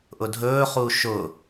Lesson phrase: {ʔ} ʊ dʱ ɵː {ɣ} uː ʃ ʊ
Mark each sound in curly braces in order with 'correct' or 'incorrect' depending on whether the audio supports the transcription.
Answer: correct, incorrect: χ

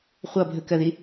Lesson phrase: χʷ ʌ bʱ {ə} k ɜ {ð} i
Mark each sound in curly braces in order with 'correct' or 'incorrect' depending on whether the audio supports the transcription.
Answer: correct, correct

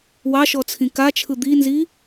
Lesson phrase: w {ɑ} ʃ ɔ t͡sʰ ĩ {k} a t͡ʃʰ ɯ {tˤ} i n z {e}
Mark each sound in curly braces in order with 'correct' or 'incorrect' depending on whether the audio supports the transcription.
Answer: correct, correct, incorrect: d̪, incorrect: i

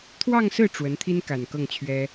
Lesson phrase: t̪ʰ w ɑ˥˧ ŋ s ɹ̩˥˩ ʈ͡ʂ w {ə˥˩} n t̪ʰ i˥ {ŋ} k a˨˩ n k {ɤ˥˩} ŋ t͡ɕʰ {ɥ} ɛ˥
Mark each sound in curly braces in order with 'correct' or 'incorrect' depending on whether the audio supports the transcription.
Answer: incorrect: ə˧˥, incorrect: n, correct, correct

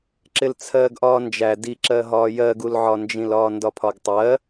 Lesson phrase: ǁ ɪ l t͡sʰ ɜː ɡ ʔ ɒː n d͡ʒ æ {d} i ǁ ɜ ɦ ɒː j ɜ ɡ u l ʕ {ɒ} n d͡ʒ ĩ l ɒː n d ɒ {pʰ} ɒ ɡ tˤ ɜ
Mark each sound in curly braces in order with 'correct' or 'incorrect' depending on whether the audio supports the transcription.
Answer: correct, correct, correct

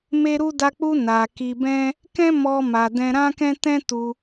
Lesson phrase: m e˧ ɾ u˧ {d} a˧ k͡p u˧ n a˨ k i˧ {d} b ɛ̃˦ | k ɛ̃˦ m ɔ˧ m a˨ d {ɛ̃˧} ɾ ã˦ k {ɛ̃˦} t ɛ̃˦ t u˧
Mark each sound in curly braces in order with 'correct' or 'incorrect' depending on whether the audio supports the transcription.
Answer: correct, incorrect: none, correct, correct

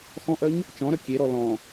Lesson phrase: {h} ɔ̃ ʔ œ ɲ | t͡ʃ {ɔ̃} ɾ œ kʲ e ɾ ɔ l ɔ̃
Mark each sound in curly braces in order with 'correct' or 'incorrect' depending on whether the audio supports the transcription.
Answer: incorrect: x, correct

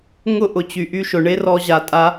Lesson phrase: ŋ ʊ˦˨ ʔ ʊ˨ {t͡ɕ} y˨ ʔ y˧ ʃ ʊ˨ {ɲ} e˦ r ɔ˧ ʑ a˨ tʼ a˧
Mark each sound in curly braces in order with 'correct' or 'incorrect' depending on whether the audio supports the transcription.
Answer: correct, incorrect: ɳ

